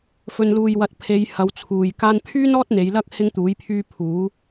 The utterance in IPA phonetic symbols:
f ɵ˨ n l uː˨ j w ɐ˨ t̚ pʰ e˨˧ j h ɐ˨˧ w t͡sʰ uː˨ j k aː˧ n pʰ yː˥ n ɔː˥ t̚ n̪ e˨˧ j l ɐ˥ k̚ h ɪ˥ ŋ t̪ uː˨˥ j pʰ yː˥ pʰ uː˨˥

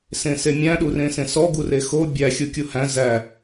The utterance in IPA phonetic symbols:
s ẽ s e mʲ æ̃ ɗ u r ẽ s ẽ s ɔ ɡ u r e x o bʲ æ xʲ u kʲ u h æ̃ z æ

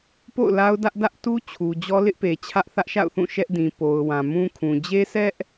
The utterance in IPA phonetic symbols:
p o̰˦˨ ʊ̯ l a˦ ʊ̯ d ä˦ ʔ d ä˦ ʔ t u˦ t͡ɕʰ u˨ d͡ʑ ɔ˦ l ɪ˦ ʔ p e˨ t͡ɕʰ ä˦ ʔ θ ä˦ ʔ ʃ a̰˦˨ ʊ̯ θ ũ˦˨ ʃ ɛ˦ ʔ d ĩ˨ p o˨ ʊ̯ w ã˨ m ũ˦ kʰ ũ˨ d͡ʑ e˦ sʰ ɛ˦ ʔ

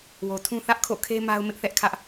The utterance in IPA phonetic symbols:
w o˨ tʰ ũ˦ θ ä˦ ʔ kʰ o̰˦˨ kʰ e˦ m a˦ ʊ̯ m ɪ˦ ʔ θ ɛ˦ ʔ kʰ ä˦ ʔ

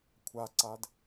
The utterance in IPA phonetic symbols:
kʷʰ a ǀ a d

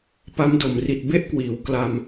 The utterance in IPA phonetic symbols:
p a˦˥ m d o˨˩ m r i˨˩ t̚ b e˥˩ ʔ k w iː˩˦ w k l a˧ m

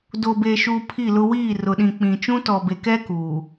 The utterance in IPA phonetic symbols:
d o˨ b e˨ ʃ u˨ pʰ i˦˨ l ʊ˦ w iː˦˨ r ʊ˨ ɗ ĩ˨ k͡p ĩ˨ t͡ʃ ũ˦ t ɔ˨ b e˨ k ɛ˦ k uː˨

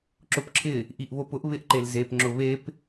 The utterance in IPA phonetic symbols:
ǁ ʊ p ǁʰ ɪ | ʔ i ʔ β o p ʊ ʔ β ɪ ʔ ǃ e l z e p ŋ͡ǁ ʊ β e p

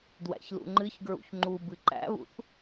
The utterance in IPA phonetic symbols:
d w æ̰ ç l ṵ ŋ͡ǃ ɨ ç ɡ ɹ ṵ ç ŋ͡ǃ u b ɨ ǃ æ̰ β ṵ θ

